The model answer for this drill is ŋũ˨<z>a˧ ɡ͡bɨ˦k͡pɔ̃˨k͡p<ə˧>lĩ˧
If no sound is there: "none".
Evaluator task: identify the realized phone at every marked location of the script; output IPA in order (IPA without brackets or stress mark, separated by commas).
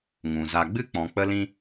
z, ə˧